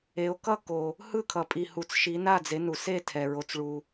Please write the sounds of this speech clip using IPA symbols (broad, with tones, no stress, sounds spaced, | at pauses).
e˨˦ o̯ k ʌ˥˨ k o˨ | h ɯ˥˨ kʰ ʌ˨ pʼ i˨ h u˨ t͡s ʃ i˨˦ n a˥˨ d͡z e˨˦ n u˨ s e˥˨ tʰ ɛ˨ ɹ o˨ t͡s ɭ u˨